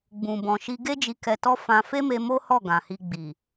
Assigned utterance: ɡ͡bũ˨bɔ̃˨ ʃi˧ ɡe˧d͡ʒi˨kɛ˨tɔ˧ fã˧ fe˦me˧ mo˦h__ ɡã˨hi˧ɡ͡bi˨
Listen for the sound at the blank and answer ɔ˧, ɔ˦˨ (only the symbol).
ɔ˦˨